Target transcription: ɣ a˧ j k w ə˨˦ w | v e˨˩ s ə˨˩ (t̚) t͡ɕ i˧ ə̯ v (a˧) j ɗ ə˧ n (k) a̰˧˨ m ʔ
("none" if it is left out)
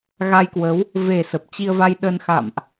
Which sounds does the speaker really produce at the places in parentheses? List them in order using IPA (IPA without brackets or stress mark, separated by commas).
p̚, a˧, x